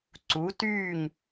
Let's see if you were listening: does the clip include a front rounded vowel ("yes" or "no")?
yes